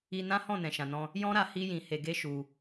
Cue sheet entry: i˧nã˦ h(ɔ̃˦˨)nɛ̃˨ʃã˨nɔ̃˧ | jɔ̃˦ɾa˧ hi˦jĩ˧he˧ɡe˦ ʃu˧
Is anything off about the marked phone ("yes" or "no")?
no